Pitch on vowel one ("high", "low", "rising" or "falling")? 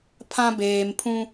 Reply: high